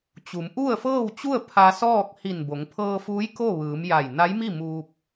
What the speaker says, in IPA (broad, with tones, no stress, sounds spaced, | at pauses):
t͡ɕ u˩˧ m ʔ u˥˨ ə̯ f ɤː˥˨ w t͡ɕ u˥˨ ə̯ pʰ a˧ s ɔː˥˨ k̚ h i˧˩ n b o˩˧ ŋ pʰ ɤː˧ f uː˧˥ j k o˥˨ ʋ ɯː˩˧ m j a˧˩ j n a˧˥ j m i˥˨ m uː˧ p̚